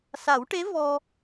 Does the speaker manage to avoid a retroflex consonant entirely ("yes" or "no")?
no